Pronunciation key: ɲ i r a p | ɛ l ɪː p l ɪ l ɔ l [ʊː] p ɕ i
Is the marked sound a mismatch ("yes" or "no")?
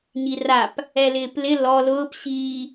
no